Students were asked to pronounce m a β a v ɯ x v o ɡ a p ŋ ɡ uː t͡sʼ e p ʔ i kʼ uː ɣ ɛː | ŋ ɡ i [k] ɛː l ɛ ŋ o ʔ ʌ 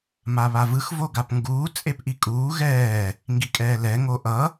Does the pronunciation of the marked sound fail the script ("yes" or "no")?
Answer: yes